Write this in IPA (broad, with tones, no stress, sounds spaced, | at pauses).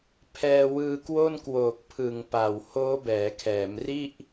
pʰ ɛː˧ w ɯː˧ k w o˥˩ n k w oː˨˩ k̚ pʰ ɯ˨˩ ŋ p a˨˩ w h oː˦˥ b ɛː˩˦ kʰ ɛː˩˦ m r i˥˩ ʔ